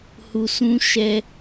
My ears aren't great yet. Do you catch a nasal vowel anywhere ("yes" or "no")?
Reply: yes